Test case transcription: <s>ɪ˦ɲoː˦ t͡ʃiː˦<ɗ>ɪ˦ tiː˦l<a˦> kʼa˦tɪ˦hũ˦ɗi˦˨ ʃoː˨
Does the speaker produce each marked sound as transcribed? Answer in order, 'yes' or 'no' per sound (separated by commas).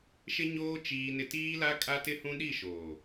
no, no, yes